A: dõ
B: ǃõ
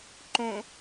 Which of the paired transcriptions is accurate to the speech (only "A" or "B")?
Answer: B